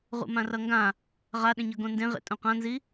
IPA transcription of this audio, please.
ʁ ṵ m ã r ʌ ŋ ɡ ã | ʁ a ɗ ẽ ɲ ʌ ɡ õ n d ẽ ʁ ḛ tʼ õ q ã n z i

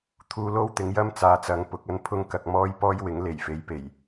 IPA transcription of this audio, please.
t̪ʰ uː˧ l o˥ w t̪ ɪ˨˧ ŋ j ɐ˥ m t͡s aː˨ t͡s ɐ˨˧ ŋ p ʊ˨˥ k̚ ɐ˥ n pʰ ʊ˥ ŋ k ɐ˨ k̚ m ɔː˥ j p ɔː˥ j w ɪ˨˥ ŋ l e˨˩ j f e˨˧ j p e˨˩ j

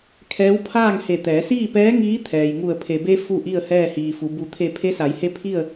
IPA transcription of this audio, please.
kʰ ɛː˧˥ w pʰ aː˥˨ ŋ h e˧˩ t̪ ɛː˩˧ s iː˥˨ p ɛː˧˥ ŋ iː˧˥ t̪ʰ ɛː˩ j ŋ u˧˩ ə̯ pʰ e˩ b e˧ f u˥˨ ʔ i˥˨ ə̯ h ɛː˥˨ h iː˩ f u˩˧ b u˩˧ t̪ʰ e˧˩ pʰ e˧˥ s a˩˧ j h e˧˥ pʰ i˥˨ ə̯

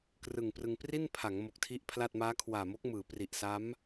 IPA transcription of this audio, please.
k r ɯ˨˩ ŋ p r ɯ˧ ŋ p r i˥˩ n pʰ a˩˦ ŋ m o˨˩ k̚ tʰ i˥˩ ʔ pʰ l a˥˩ t̚ m aː˦˥ kʰ w aː˨˩ m o˦˥ k̚ m ɯː˩˦ p r i˨˩ ʔ s a˦˥ m

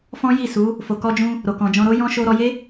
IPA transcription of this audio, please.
f ɔ̃˦ j i˦˨ s u˨˦ | f o˨ k ɔ˧ d͡ʒ ũ˧ | ɾ o˨ k ɔ̃˨ d͡ʒ ɔ̃˧ ɾ o˦ j ɔ̃˧ ʃ o˧ ɾ ɔ˧ j e˦

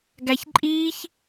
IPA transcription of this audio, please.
ɡ æ ç ǃʼ iː ç

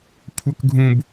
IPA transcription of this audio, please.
kʷʰ ə k ɡʱ ũ b

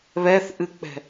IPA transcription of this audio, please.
β ɛ θ ʔ ɨ k͡p ɛ̤

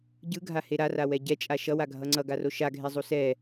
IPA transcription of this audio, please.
ɟ ɯ ɡʱ a h e ɾ a r a w ɛ ɟ ɛ t͡ʃʼ a ʃ ʌ w a ɡʱ ʌ ŋ͡ǀ ʌ ɡ a r o ʃ a ɡʱ e zˤ u s ɛ

